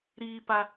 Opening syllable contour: high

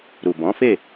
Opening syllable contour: low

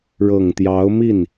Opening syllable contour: low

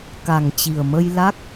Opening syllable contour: low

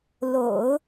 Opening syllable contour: low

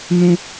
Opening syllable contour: high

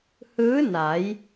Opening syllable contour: rising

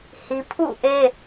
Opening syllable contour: high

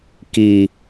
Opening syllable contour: low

